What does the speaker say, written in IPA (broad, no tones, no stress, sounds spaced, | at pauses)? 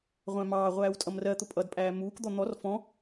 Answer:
ʁʷ æ̃ m ɑː ʁʷ æː w tʼ ʌ m r ɜ t̪ ʊ pʼ ʌ d pʼ æː m uː k d̪ ɔ n̪ ɔ r f ɔ̃